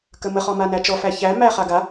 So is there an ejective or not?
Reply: no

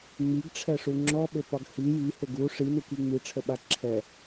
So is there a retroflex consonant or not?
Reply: yes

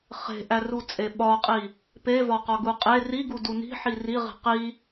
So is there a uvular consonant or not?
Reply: yes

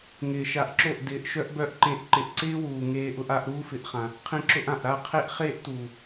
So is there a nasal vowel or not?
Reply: yes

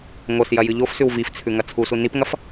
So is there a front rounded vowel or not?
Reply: no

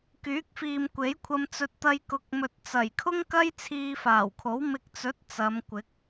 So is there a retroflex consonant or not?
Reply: no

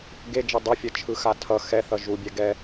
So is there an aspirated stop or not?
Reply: yes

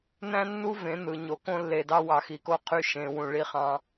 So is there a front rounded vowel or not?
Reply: yes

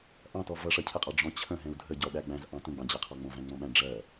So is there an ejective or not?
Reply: yes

